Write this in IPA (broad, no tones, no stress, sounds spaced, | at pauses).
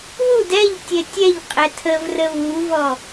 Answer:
w u d ɛ ʎ tʲ ɛ tʲ ɛ ʎ qʼ ɛ tʰ ə v r ə β u v ɔ